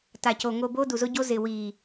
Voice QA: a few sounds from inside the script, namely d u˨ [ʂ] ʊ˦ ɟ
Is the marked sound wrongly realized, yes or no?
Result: yes